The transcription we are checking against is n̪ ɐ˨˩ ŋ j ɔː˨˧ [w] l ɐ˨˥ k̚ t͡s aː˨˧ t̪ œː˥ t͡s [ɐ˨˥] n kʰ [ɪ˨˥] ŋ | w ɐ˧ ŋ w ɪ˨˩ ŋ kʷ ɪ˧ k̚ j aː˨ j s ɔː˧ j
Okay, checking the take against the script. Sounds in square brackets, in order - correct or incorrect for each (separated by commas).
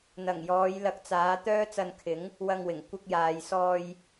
incorrect, incorrect, correct